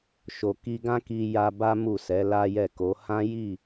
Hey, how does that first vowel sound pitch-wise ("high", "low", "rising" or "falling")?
low